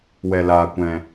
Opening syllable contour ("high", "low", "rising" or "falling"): low